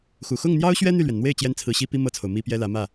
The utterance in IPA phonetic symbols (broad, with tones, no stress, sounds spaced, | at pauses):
x u˨˩ x ʊ˥˩ ŋ n̪ j ɑ˥ ʊ̯ ɕ ɥ ɛ˥ n̪ y˥˩ l ɥ ɛ˩ n n̪ w e˥˩ ɪ̯ t͡ɕ j ɛ˥ n t͡sʰ ɹ̩˧˥ ɕ i˥ p i˥ m ɤ˥˩ t͡sʰ o˩ ʊ̯ m i˥ p j ɛ˥ l ä˧˥ m ä˥˩